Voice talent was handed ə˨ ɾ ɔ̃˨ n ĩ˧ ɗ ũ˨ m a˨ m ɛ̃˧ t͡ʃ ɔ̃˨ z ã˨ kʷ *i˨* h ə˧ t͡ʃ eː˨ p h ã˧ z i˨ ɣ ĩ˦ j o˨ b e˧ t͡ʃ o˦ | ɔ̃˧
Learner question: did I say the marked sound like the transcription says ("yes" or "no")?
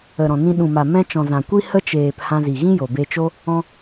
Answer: no